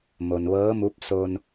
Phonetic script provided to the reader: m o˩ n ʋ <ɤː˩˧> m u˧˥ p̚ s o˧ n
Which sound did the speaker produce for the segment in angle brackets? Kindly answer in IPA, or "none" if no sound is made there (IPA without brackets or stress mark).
ɤː˧˥